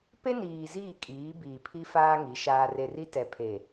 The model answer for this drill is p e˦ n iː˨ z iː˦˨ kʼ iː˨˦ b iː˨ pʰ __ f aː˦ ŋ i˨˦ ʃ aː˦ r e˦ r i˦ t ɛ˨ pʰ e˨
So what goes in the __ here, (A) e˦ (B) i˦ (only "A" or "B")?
B